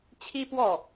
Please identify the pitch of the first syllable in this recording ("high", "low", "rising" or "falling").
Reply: high